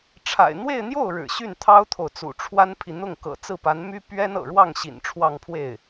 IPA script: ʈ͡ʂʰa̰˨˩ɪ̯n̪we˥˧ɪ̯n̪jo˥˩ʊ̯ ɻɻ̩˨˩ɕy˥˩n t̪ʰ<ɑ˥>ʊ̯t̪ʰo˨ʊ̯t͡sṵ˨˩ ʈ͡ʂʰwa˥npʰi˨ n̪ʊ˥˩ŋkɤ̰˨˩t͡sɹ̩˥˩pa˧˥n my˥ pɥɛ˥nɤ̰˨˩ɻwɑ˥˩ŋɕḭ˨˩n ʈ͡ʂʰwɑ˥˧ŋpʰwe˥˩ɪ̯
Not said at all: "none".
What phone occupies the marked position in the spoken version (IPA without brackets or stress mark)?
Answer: ɑ˥